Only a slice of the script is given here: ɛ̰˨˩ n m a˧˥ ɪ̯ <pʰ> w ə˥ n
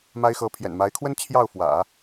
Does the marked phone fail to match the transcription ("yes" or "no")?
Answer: yes